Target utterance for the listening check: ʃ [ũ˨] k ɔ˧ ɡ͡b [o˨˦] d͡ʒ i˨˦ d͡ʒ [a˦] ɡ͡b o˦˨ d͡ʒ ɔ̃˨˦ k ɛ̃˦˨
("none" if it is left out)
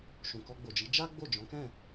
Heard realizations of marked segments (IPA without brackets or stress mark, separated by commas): ũ˨, o˨, a˦